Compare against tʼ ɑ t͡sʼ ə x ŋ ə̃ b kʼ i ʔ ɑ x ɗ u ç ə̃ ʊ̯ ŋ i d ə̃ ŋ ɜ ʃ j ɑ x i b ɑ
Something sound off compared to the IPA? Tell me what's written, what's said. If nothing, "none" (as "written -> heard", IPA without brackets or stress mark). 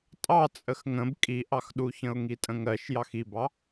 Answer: d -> tʼ